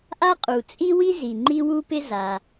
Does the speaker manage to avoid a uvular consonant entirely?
no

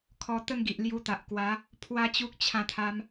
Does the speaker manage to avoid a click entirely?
yes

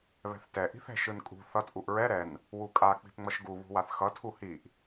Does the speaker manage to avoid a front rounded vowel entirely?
yes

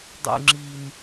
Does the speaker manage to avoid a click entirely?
no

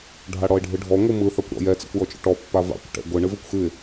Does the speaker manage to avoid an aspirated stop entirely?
yes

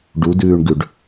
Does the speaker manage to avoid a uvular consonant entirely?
yes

